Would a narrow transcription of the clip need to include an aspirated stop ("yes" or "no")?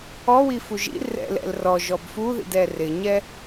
no